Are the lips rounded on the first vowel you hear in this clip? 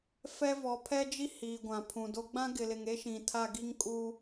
no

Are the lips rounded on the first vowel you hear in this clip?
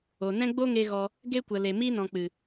yes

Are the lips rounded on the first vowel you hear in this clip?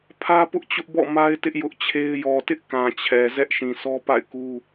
no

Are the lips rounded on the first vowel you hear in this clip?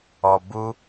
yes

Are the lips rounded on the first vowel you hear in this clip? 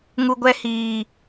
yes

